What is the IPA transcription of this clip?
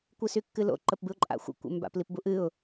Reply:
kʷ ɨ s y kː ɨ l o̰ ǃ ə p b ɨ ʊ̯ ǃʼ a̰ xʷ ə̰ kʷ ə̰ m b a̰ p l i p b u ʔ ɨ ʊ̯

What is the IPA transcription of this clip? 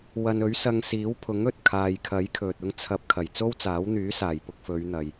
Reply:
w ɐ˨ n ɵ˨˥ ɥ s ɐ˧ ŋ s iː˨˥ w pʰ ʊ˨˥ ŋ ɵ˨ t̚ kʰ aː˨ j kʰ ɐ˨˥ j kʰ ɵ˨ t̚ ʊ˧ ŋ t͡sʰ ɐ˨˥ p̚ kʰ ɐ˨˩ j t͡s o˥ w t͡s aː˨˥ w n̪ yː˨˥ s aː˨˩ j p ʊ˧ k̚ f ɵ˨˧ ɥ n̪ ɐ˨ j

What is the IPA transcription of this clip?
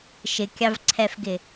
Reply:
ʃ ɪ kʲ ɑ v ǀʰ ɛ f ɡ ɪ

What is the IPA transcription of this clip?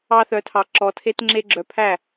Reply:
ɑ˦ θ œ˧ tʰ ɑ˧ ǁ ɔ˧ tʰ e˦ t ŋ͡ǁ e˦ ɡ͡ǁ œ˧ pʰ æ˦˨

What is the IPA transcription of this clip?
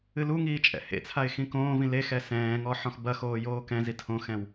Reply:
ɨ l u ŋ iː t͡ʃʼ ɛ̰ h ḛ t͡sʰ a ɪ̯ x ĩ k õː v ĩ l e x ɛ s ɛ̃ː ŋ ɔ ħ ɔ̃ x b ɐ x oː j oː k ɛ̃ z i tʰ õ x ɛ̃ w

